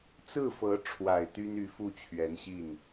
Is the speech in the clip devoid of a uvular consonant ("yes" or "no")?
yes